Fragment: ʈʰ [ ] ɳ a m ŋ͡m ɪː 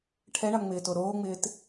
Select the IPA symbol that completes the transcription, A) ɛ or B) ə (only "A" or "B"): A